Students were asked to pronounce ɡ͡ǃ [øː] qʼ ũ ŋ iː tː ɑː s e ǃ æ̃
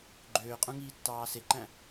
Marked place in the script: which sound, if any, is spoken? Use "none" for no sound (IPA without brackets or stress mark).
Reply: øː